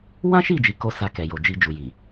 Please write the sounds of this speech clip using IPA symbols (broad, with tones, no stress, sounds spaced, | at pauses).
w ã˦ ʃ i˦˨ d͡ʒ i˨ k o˧ s a˧ k ɛ˨ j o˨ d͡ʒ i˧ d͡ʒ u˨ j i˨